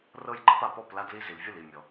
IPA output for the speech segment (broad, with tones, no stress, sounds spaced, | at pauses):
r ɤ˧ j ɡ͡ǃ ɤ˧ p a˩ p ɔ˥˩ p l a˧ d l i˧ z i˩ l vʲ ɯ˥˩ l i˥˩ mʲ ɔ˩